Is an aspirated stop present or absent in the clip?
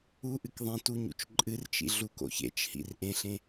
absent